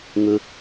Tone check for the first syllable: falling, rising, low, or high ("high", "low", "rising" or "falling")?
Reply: high